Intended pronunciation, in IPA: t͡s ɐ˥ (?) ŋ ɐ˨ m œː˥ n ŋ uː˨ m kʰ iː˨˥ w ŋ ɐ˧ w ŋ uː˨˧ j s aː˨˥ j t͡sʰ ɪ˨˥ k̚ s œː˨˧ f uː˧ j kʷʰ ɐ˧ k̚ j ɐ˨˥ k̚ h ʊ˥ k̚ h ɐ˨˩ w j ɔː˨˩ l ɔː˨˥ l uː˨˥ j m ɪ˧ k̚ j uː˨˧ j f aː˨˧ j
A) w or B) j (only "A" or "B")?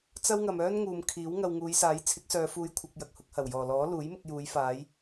A